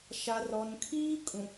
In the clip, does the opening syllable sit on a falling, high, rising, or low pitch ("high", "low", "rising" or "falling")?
low